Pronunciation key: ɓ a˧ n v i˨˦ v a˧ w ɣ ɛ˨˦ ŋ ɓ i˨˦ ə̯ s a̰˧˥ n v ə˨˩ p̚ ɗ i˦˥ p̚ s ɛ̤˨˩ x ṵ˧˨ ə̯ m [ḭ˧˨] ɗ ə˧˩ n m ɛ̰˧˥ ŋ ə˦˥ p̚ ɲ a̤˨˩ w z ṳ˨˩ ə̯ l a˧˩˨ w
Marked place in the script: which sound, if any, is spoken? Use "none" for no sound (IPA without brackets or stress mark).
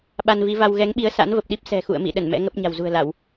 ḭ˧˨